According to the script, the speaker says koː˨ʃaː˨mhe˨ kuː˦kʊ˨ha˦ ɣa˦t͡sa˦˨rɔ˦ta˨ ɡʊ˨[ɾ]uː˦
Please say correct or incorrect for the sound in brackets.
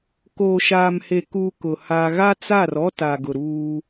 correct